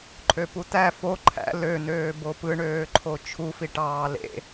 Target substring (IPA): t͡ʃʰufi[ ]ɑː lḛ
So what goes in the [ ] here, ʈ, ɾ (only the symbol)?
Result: ʈ